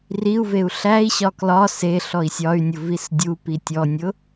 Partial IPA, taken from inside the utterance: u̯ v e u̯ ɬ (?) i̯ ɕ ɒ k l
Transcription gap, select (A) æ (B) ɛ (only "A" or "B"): A